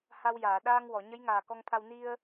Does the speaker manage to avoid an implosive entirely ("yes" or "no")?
no